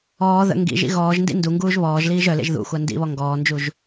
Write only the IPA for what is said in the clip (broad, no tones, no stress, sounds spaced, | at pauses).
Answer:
ɔː ð ə̰ ŋ ɡ ḭ ʒ ḭ ɣ ɔː ʒ n d ḭ n d u ŋ ɡ uː ʒ β ɔː ʒ l iː ʒ œ l ḛ ʒ ð ṵ xʷ a n d ḭ β ɔ ŋ ɡ ɔː n d͡ʒ u ʒ